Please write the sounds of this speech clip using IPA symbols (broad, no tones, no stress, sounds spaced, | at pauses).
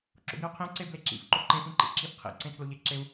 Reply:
ǁ o̰ b i u̯ qʰ ĩ u̯ ǀ e b l e ǁ ḭ f ǃ o ǃ ẽ f ĩ ǃ ḭ ǁ i f qʰ ḭ ǀ ẽ tʰ l o ʎ e ǁ e u̯